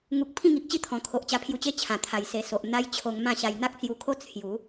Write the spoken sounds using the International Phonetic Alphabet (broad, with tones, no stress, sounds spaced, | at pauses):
ŋ u˨ k̚ pʰ ĩ˥˧ ŋ i˨ k̚ t͡ɕ i˥˧ t̪ʰ ɔ̃˨˩ kʰ o˨ ʔ t͡ɕ a˧ pʰ j u˧ t͡ɕ e˥˧ t͡ɕʰ ã˨˩ t̪ʰ a˨˩ j s e˨˩ s o˨ ʔ n̪ a˦ j t͡ɕʰ o˧ ŋ m ã˥˧ ɕ a˧ j n̪ a˦ k̚ t͡s j u˧ kʰ o˦ t͡sʰ j u˨˦